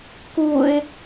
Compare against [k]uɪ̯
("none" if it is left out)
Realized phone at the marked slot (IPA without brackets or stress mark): k